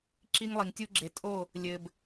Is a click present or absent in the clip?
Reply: present